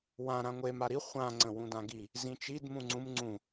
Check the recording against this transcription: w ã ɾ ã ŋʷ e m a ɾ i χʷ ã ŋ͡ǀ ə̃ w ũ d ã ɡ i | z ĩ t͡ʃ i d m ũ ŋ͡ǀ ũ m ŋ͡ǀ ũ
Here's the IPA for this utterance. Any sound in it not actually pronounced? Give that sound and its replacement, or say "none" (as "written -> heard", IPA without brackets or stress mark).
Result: none